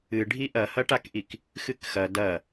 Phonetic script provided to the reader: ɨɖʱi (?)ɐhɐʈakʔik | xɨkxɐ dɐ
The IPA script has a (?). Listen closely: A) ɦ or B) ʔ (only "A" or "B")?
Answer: B